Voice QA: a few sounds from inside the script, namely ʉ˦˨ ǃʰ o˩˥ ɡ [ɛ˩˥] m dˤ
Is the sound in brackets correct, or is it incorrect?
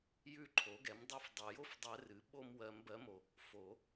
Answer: correct